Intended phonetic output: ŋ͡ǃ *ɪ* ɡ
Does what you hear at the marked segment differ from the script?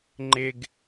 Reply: no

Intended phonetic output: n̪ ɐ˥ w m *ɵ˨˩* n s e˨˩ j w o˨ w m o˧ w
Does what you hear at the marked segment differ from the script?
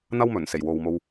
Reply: no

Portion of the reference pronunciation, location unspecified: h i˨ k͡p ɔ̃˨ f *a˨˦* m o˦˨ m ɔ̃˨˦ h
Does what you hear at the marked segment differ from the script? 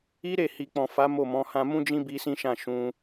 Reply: no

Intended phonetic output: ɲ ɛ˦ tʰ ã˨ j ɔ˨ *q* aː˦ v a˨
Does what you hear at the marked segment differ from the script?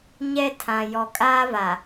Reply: yes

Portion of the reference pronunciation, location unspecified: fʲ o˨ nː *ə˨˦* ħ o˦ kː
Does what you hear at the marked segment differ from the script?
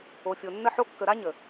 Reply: yes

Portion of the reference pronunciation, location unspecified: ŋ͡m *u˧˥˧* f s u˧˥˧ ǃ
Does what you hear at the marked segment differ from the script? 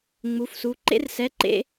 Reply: no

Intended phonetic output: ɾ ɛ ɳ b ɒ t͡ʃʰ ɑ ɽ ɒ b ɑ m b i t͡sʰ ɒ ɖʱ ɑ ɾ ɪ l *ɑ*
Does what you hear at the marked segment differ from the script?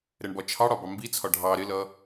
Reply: yes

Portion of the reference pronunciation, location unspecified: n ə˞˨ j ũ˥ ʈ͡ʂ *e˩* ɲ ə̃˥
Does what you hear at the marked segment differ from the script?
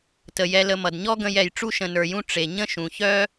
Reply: no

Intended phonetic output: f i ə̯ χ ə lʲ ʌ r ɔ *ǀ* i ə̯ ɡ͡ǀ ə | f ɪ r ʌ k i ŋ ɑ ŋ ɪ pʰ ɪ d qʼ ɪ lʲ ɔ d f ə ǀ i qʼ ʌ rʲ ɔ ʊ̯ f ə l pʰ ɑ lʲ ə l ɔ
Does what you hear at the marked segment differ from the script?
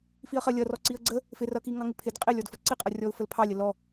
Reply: no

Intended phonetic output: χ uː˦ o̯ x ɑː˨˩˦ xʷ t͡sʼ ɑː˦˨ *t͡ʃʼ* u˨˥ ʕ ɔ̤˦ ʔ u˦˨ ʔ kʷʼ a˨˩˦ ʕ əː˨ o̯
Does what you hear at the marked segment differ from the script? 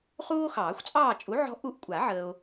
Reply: no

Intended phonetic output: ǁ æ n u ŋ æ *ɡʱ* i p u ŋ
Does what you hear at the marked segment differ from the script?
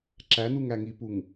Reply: yes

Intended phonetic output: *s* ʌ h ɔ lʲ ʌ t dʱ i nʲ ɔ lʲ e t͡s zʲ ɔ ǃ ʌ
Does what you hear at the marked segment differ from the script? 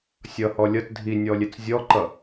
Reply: yes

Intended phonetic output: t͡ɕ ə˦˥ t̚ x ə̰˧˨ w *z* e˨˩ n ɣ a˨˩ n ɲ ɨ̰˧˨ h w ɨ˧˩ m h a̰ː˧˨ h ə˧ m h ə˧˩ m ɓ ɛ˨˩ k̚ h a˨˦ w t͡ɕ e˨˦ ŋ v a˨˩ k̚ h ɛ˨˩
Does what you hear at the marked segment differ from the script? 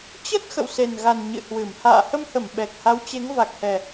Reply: yes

